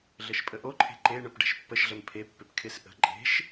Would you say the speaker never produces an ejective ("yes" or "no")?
no